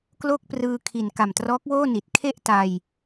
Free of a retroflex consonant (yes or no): yes